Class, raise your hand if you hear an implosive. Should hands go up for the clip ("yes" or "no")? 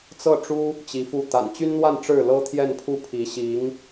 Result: no